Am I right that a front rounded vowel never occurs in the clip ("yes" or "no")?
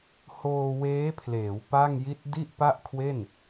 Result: yes